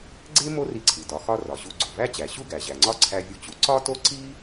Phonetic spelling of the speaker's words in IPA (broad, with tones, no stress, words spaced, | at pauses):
ɡ͡ǀe˥ mo˥ri˧ǀʰi˩ dɒ˩xɒ˧ rɒ˩ɕu˧ ɡ͡ǀo˩væ˥t͡ɕæ˩ ɕu˥ɡæ˩ʑæ˩ŋ͡ǀɒ˥ ǀʰæ˧vʲu˧t͡ɕu˩ ǀɒ˥to˥ ǀi˥